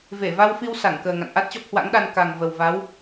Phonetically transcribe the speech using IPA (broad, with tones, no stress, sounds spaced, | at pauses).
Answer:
v e˧˩ v a˧ w f i˧ w s a˧˩ ŋ k əː˨˩ ŋ a̰˧˨ n ʔ a˦˥ t̚ t͡ɕ ɔ˦˥ p̚ h w a̰˧˥ ŋ ɗ a˧ n k a˨˩ ŋ v ə˨˩ w v a˨˦ w